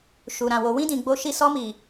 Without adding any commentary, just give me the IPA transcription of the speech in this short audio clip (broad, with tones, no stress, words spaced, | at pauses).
ʃu˨ ɾã˨wo˨ wĩ˧dĩ˨ ɡ͡bo˧ʃi˧ sɔ˧mi˨